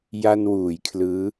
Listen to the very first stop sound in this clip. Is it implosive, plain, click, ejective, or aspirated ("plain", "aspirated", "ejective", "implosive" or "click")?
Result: aspirated